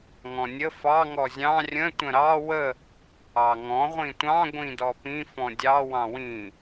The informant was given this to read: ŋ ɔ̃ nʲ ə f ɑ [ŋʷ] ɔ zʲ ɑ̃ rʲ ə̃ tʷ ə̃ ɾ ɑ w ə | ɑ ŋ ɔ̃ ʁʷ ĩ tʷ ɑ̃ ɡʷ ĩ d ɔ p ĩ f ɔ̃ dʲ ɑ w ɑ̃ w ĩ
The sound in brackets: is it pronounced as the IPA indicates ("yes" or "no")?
no